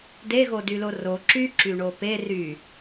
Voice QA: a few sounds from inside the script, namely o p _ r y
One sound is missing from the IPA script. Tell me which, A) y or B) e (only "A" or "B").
B